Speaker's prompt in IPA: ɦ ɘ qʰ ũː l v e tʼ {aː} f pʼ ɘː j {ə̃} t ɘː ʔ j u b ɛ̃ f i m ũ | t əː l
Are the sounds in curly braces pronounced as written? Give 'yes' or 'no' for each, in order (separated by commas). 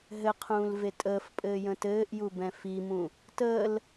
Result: no, yes